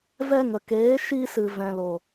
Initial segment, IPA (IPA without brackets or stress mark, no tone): v